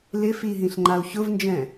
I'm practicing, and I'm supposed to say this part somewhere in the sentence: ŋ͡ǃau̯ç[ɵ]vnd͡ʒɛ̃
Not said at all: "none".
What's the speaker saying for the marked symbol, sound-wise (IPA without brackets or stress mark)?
ʊ